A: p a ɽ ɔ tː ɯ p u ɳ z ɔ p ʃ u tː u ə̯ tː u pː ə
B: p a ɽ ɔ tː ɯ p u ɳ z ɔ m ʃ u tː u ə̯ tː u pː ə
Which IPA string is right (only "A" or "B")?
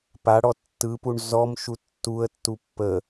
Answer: B